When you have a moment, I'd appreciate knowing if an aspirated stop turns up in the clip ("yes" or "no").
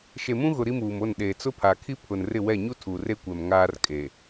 yes